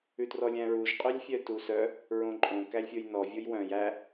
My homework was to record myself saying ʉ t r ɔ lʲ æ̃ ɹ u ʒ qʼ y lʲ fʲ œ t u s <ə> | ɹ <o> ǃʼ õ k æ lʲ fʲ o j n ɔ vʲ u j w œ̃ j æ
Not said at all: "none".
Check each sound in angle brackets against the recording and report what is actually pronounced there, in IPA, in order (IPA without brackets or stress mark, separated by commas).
œ, õ